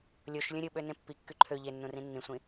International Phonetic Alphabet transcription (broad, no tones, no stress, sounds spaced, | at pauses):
lʲ o ʃ lʲ ũ ɾʲ ɯ ɓ ø n ẽ pː i kː y ǃʰ ø ʎ e nː ũ r ĩ nː ĩ sʷ ĩ